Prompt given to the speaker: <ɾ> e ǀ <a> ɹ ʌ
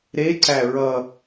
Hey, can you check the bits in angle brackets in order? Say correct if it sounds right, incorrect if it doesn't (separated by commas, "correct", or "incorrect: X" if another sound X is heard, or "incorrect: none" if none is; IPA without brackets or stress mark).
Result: correct, incorrect: æ